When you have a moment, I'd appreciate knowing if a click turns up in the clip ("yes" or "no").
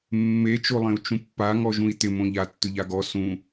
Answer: no